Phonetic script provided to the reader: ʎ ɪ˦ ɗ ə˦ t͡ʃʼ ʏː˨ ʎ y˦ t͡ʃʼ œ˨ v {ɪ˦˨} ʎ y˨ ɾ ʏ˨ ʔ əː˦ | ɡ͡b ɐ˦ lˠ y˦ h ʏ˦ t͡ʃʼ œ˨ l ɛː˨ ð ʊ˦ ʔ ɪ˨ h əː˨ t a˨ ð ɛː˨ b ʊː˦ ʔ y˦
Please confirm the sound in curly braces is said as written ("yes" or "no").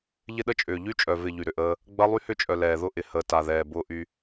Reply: yes